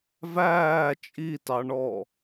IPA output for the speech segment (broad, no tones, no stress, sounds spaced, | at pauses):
v æː t͡ʃʼ i t ɑ ɳ ɔː